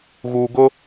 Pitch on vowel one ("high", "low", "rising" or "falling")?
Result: low